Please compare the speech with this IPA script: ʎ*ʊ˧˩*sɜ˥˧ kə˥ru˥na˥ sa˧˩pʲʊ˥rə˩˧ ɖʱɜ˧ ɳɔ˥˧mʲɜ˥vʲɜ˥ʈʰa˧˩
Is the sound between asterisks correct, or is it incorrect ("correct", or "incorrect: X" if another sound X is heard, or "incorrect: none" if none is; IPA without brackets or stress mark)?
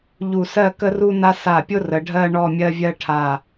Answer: incorrect: u˧˩